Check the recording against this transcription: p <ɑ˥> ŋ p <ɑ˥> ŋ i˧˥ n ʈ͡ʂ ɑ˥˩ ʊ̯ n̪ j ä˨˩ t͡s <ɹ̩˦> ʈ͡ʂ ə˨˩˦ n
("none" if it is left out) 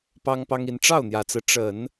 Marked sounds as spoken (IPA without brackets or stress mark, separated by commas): ɑ˥, ɑ˥, ɹ̩˦